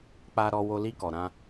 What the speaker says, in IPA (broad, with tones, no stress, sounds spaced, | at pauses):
k͡p a˧ ɾ ɔ˧ w o˧ l i˧ k ɔ˨ ɾ ã˧